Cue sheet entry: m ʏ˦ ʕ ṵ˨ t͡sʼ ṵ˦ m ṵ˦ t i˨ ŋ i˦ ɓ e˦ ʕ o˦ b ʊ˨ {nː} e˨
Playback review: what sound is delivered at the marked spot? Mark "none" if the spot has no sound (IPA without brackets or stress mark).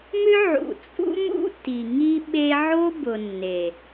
nː